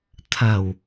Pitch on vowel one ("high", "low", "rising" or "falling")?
low